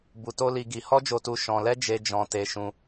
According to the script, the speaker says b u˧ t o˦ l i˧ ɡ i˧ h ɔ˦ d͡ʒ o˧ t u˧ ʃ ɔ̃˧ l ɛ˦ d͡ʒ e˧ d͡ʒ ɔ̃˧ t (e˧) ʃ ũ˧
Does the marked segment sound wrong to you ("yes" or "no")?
no